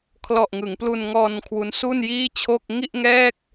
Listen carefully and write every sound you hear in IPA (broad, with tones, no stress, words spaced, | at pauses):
kʰlɔ˨˩ʔŋɯ˩˦ŋplu˧n ŋɔː˧n kʰwu˦˥nsu˥˩njiː˥˩t͡ɕʰo˥˩k̚ ŋi˥˩ʔŋɛː˥˩k̚